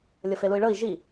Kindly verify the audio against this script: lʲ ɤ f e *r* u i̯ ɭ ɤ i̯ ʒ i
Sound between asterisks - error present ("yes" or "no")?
yes